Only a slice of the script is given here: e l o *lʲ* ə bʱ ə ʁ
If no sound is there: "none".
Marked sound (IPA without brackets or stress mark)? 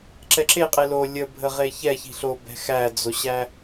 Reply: lʲ